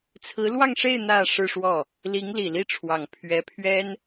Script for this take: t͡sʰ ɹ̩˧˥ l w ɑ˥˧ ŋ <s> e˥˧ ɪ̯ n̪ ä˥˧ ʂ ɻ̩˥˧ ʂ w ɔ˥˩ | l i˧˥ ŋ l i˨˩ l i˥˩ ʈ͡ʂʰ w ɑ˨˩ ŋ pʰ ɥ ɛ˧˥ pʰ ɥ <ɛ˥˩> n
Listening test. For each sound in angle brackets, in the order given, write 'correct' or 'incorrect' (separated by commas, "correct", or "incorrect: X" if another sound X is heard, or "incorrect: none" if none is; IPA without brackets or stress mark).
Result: incorrect: ʂ, incorrect: ɛ˥